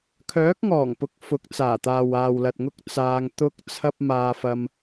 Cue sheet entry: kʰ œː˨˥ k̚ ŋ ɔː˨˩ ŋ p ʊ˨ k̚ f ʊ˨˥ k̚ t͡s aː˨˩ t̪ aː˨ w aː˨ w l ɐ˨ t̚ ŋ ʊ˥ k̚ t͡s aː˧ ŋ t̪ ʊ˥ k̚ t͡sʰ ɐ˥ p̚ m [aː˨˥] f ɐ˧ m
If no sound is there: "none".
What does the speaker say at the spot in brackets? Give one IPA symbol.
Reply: aː˧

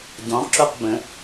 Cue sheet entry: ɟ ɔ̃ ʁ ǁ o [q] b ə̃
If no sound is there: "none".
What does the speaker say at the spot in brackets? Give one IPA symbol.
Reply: q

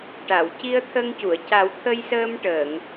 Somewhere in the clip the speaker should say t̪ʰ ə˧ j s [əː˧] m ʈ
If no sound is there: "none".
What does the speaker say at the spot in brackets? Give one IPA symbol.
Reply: əː˧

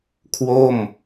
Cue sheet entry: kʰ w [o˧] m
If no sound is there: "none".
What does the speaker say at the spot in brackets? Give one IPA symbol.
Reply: o˥˩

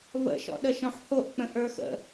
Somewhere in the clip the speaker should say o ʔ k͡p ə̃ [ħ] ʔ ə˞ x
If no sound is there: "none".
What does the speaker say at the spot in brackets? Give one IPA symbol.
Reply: none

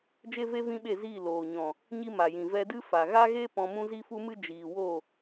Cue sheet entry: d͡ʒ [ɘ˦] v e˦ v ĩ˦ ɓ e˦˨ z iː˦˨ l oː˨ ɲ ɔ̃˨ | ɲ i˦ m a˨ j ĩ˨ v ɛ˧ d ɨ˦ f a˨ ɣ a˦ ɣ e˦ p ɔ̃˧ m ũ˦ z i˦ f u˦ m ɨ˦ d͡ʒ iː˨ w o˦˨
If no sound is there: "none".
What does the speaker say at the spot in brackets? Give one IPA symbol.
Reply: e˦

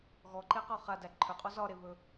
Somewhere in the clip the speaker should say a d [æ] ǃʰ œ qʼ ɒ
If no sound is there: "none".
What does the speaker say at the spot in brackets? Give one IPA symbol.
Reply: æ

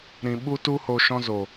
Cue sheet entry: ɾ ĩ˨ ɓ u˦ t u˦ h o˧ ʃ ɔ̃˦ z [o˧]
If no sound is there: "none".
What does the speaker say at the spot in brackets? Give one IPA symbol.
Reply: o˨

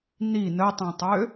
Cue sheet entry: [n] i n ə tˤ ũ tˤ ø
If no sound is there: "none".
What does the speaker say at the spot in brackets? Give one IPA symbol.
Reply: n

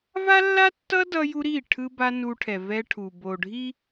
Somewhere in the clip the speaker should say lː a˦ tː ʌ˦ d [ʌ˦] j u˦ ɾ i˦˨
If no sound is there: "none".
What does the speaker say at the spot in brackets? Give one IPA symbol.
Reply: ʌ˦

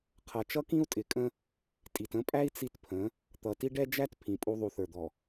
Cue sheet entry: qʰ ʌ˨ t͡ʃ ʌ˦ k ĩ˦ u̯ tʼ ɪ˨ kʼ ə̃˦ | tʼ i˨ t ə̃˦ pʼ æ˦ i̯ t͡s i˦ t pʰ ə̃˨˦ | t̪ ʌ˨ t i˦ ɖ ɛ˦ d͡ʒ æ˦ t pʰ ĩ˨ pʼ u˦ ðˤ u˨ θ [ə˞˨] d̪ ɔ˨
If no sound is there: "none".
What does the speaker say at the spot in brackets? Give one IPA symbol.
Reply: ə˞˨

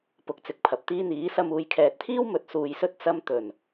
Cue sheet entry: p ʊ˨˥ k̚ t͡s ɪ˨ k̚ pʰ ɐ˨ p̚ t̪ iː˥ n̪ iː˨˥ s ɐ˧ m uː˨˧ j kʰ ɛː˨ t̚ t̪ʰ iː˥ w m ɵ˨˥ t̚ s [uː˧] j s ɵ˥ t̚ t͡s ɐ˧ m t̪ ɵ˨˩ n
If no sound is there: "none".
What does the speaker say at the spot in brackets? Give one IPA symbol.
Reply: uː˨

